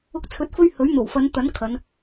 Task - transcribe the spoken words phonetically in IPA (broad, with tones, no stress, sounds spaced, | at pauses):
ʊ˧ k̚ t͡sʰ ɵ˨˥ t̚ f ɵ˧ ɥ h ɵ˨˥ ɥ n̪ o˨˩ w f ɐ˨˧ n t̪ ɐ˨˥ n kʰ ɐ˨˧ n